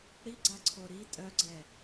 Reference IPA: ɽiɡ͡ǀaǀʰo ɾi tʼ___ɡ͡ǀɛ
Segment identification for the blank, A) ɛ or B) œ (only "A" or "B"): B